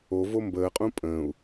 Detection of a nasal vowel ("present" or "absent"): present